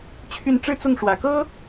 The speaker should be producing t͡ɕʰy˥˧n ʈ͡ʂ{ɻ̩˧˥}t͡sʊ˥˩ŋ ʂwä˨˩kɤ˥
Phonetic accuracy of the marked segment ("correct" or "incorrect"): incorrect